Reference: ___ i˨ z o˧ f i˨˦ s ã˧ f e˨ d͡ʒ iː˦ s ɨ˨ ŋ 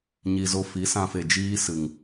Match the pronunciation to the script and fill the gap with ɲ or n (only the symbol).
ɲ